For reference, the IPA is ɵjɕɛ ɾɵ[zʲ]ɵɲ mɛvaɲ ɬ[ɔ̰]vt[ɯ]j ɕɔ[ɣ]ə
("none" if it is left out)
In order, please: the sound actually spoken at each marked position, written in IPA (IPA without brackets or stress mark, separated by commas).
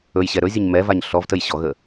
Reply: zʲ, ɔ, ə, ɣ